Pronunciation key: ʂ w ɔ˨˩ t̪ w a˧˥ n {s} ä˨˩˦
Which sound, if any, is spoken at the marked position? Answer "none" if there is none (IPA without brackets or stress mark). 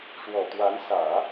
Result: s